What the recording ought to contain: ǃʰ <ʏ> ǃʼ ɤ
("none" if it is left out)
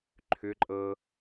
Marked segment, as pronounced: ʏ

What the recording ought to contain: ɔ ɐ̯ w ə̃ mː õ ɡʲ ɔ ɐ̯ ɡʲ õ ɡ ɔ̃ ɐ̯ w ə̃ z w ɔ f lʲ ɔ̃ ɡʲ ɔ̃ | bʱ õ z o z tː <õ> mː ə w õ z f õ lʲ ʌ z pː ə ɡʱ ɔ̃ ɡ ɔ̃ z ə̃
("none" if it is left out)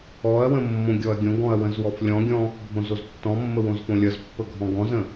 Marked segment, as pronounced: ɔ̃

